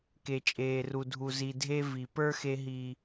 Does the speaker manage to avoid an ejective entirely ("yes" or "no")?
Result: no